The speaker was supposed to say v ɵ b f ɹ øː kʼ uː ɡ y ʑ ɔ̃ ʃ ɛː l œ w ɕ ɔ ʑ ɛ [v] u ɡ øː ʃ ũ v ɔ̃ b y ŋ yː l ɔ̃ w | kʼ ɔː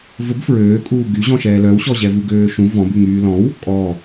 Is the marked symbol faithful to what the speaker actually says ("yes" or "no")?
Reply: yes